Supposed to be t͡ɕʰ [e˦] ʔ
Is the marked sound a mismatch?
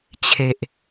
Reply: yes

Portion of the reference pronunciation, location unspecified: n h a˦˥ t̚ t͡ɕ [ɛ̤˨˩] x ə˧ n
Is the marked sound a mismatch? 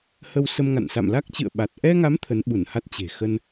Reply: yes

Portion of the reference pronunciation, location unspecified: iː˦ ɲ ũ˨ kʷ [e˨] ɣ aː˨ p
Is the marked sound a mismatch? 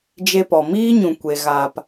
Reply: no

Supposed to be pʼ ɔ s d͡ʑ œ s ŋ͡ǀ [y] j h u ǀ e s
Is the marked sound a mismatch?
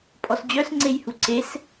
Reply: yes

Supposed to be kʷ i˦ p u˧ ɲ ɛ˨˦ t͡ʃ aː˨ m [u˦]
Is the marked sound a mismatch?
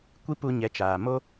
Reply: yes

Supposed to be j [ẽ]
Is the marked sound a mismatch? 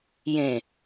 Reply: no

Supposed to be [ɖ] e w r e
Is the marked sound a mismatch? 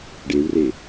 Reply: no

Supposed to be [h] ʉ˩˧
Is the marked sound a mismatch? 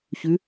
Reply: yes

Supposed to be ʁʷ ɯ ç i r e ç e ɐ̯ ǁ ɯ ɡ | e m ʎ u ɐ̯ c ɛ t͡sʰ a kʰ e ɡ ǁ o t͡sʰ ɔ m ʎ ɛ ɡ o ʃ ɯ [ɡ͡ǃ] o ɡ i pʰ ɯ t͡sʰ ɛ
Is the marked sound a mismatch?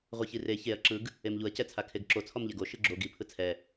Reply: yes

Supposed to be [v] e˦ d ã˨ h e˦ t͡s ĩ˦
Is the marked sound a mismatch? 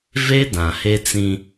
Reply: no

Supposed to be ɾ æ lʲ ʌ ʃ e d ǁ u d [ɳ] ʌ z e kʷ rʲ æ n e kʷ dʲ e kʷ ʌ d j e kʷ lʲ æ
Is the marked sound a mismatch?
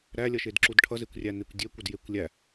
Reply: yes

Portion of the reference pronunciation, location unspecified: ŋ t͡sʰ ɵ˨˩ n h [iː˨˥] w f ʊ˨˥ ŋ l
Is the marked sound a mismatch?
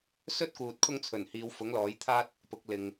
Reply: yes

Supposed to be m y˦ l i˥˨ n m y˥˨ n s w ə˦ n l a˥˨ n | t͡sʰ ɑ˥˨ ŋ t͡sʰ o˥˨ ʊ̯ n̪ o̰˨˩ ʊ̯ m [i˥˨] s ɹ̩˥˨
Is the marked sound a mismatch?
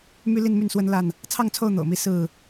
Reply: yes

